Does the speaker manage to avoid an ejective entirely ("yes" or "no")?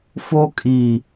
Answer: no